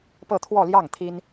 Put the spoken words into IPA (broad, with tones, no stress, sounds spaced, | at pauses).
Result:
p ɤ˥˧ t̪ʰ w ɔ˥˧ l j ɑ˥˩ ŋ t̪ʰ i˥ n